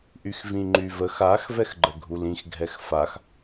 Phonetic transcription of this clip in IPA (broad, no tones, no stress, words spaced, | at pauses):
ʔyxvĩŋ͡ǃyvəx ax vɛxɡ͡ǃəɡʱulĩx ɡʱɛxfax